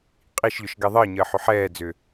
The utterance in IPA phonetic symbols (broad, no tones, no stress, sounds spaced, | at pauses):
qʼ i ʃ ʎ ʊ ʃ ɡ ɛ ðˤ əː ɲ əː ħ ʏ ħ ɛː d͡z ʏ